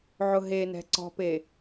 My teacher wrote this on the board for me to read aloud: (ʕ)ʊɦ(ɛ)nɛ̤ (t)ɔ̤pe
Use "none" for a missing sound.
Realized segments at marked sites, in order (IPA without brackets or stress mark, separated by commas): ʕ, e, ǀ